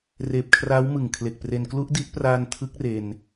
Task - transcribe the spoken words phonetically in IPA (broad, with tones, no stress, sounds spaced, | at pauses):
r eː˨˩ p̚ kʰ r aː˦˥ w m ɯ˨˩ ŋ kʰ l e˨˩ k̚ p r e˧ n k l u˦˥ ʔ d i˦˥ ʔ p r aː˧ n tʰ ɯ˦˥ k̚ r e˧ n